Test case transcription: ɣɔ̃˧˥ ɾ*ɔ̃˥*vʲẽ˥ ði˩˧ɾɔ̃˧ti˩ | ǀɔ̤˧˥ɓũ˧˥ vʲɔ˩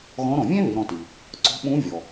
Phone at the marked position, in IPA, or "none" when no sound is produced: ɔ̃˩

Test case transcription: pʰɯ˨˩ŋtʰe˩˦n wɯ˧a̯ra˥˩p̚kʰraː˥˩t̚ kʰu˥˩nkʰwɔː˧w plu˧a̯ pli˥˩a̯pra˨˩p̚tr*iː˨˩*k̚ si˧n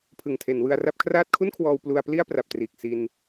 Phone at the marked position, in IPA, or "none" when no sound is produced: iː˨˩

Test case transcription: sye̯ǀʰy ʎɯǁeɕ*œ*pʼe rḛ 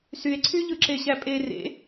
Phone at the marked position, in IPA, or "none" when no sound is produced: æ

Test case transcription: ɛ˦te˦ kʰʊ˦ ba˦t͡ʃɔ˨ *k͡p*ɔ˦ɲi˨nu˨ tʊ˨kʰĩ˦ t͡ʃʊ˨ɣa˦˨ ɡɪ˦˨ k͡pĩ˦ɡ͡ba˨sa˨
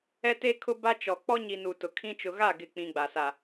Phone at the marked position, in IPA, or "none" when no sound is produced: k͡p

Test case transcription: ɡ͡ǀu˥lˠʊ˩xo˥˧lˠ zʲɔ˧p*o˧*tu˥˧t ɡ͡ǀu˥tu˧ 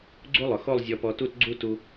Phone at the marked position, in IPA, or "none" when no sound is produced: ɔ˧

